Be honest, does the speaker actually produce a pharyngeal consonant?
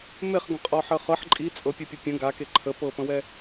yes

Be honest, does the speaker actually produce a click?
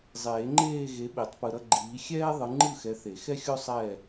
yes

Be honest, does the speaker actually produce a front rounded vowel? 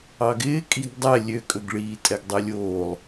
yes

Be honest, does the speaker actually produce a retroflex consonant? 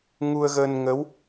no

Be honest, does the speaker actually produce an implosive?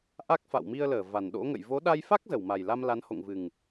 yes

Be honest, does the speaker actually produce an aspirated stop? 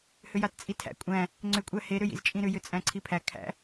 yes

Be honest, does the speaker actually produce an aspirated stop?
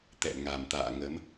no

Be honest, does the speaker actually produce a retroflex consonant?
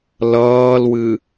no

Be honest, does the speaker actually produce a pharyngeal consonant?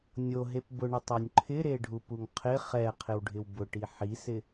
yes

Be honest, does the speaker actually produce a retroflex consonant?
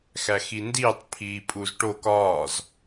yes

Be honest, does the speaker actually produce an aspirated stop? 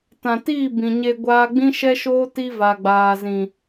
no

